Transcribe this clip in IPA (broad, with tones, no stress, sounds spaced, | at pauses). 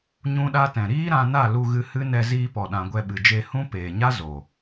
ɲ ũ˦ ɗ a˦ t ɛ̃˨ ɾ iː˦ ɾ ã˧ n a˦˨ l u˧ ɣ ɨ˧ h ɨ˦ n ɛ˧ z iː˧ p ɔ˨ ɗ ã˨ ɡʷ ɛ˧ ɓ ɨ˨ d͡ʒ e˧ h ũ˦ p eː˨ ɲ a˦ z o˨